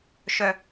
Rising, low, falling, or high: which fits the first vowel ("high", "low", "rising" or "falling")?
high